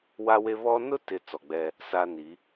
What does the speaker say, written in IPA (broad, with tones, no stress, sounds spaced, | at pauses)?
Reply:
w a˦ w e˦ β ɔ˦ n ʊ˦ t ɪ˨ t͡s ɔ˨ ɡ͡b ɛ˦ | s a˦ n i˨˦